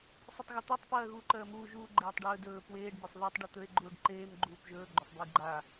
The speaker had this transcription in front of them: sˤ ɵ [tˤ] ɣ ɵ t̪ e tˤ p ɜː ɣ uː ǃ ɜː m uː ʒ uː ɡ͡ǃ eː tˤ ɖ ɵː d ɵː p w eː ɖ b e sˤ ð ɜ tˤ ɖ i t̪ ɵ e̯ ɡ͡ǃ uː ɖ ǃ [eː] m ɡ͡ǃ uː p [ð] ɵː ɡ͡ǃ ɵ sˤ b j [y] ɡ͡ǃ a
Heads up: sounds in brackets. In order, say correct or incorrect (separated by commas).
correct, correct, incorrect, incorrect